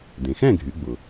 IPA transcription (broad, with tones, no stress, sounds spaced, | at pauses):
d ẽ˩ x ɛ̃˥˨ ɡʱ y˩˧ ɡ͡b ʊ˩